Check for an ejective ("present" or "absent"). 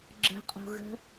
present